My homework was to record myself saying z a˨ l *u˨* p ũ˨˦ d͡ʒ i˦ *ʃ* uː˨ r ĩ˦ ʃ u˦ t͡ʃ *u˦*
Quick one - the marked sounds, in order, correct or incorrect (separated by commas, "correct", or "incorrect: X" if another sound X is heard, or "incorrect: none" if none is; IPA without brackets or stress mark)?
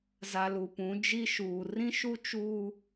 correct, correct, incorrect: uː˦